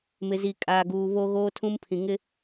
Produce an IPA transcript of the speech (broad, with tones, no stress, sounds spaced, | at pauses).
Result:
m ɪ˨ z i˨ kʼ aː˨ ɡ uː˨ β o˦ ɣ oː˦ tʰ ũ˦ m pʰ ĩ˨ ŋ ɪ˦